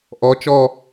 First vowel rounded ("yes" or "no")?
yes